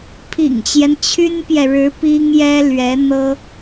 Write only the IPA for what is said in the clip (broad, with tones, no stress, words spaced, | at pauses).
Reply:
pʰḭ˨˩ŋt͡ɕjɛ˦n t͡ɕʰy˥npjɛ˨ɻɻ̩˧˥ pi˥ŋjɛ˥ lɥɛ˧˥n̪ɤ˥